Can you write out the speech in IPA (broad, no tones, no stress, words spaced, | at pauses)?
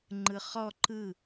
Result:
ŋ͡ǃɯχɔ ǃɯ